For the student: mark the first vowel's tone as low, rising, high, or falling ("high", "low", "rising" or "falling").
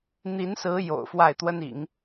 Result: rising